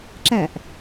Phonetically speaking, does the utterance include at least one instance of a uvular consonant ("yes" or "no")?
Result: no